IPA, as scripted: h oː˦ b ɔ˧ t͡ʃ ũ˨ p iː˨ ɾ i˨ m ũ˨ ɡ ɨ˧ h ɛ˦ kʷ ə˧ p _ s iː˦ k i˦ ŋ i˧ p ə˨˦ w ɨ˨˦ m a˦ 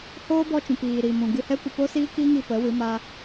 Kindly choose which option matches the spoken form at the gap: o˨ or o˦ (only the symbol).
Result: o˦